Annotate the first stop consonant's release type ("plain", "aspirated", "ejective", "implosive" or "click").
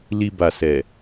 plain